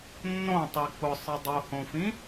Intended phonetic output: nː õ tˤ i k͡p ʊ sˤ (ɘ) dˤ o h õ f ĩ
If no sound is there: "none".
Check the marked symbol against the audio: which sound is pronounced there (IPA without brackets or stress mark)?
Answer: ɘ